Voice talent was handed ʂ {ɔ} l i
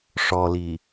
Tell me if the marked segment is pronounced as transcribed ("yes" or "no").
yes